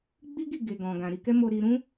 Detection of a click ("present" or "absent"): absent